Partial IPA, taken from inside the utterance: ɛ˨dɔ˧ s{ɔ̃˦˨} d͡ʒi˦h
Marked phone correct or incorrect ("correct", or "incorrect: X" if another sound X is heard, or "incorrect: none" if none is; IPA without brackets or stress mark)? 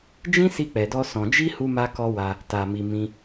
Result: incorrect: ɔ̃˧